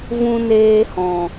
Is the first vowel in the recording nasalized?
yes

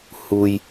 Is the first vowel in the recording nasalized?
no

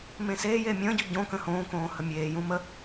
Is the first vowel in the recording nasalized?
yes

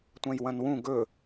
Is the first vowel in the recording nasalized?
yes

